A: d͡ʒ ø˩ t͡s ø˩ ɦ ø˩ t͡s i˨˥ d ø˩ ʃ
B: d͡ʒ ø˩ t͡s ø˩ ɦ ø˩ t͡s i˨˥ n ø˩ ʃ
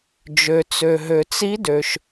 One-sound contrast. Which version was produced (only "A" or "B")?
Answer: A